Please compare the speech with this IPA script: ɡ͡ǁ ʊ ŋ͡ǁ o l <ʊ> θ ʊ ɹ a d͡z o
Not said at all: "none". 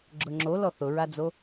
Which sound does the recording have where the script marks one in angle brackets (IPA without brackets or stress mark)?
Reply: ɔ